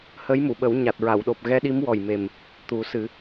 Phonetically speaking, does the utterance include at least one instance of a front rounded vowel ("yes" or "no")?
no